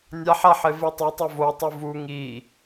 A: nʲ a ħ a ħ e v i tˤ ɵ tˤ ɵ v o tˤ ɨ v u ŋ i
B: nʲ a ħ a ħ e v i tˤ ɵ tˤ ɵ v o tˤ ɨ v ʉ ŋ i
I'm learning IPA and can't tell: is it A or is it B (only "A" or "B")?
A